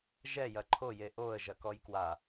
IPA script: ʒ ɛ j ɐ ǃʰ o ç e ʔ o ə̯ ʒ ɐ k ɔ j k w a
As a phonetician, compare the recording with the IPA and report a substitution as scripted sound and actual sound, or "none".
ç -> j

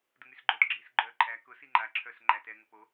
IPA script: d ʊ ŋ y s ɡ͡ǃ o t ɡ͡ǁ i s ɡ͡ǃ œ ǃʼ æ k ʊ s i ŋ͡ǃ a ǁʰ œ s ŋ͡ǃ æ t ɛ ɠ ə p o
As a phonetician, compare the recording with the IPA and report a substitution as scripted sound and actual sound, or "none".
ɠ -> ŋ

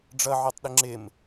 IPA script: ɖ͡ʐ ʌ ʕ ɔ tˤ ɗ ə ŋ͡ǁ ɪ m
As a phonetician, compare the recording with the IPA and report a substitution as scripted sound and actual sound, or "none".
none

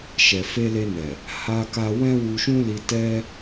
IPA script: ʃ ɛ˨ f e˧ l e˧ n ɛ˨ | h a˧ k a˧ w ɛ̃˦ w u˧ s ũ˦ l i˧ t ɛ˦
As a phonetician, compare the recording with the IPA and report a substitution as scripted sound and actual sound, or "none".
s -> ʃ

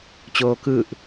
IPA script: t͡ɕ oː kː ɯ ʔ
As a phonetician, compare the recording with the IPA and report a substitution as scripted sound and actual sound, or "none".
kː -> k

